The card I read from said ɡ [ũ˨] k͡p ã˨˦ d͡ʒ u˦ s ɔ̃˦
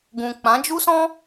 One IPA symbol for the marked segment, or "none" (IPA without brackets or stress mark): ũ˨